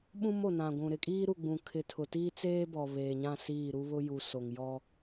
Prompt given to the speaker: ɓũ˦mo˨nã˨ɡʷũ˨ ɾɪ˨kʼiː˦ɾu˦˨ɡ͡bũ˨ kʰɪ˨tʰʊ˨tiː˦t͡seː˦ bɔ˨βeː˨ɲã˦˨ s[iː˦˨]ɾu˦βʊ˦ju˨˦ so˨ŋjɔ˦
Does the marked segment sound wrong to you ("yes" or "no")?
no